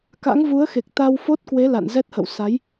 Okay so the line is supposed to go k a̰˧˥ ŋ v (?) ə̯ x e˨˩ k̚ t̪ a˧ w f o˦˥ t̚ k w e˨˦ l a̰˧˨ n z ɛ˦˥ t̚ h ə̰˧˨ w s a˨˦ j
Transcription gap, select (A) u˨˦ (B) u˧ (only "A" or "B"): A